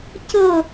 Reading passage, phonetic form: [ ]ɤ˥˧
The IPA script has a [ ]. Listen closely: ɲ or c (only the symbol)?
c